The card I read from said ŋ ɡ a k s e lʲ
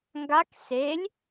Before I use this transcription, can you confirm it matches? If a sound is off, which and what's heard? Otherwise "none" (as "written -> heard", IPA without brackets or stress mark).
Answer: none